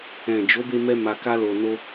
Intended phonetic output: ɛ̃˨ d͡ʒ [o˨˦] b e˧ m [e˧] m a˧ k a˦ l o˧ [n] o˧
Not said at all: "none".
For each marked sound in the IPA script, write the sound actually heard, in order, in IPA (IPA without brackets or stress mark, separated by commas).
o˨˦, ɛ˧, n